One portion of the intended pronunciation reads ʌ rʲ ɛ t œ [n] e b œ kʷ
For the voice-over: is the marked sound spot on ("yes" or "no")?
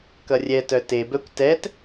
no